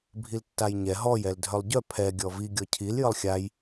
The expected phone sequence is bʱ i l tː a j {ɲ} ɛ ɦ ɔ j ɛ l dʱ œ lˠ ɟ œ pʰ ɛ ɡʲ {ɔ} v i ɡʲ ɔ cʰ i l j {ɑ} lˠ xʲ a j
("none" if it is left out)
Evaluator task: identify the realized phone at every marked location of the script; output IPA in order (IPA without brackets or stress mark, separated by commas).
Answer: ɲ, ɔ, ə